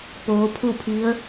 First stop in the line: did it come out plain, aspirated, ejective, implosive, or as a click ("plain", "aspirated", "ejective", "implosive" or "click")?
plain